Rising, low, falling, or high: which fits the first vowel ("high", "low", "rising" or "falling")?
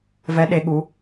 rising